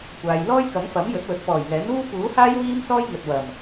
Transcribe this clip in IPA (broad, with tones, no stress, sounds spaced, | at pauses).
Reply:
kʷ aː˨ j l ɔː˥ j k ɐ˨˥ ŋ f ɐ˨˥ m j ɵ˨˥ t̚ w ɵ˨˥ t̚ p ɔː˨˩ j ŋ ɛː˨˥ n uː˥ p uː˨˥ h aː˥ j w iː˥ m s ɔː˥ j ŋ ɵ˨ t̚ w ɐ˨˩ m